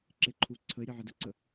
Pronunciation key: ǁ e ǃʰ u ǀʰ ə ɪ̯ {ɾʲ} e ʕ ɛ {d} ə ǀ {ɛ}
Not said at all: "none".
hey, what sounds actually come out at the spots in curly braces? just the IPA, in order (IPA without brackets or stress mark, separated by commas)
ɾʲ, d, ə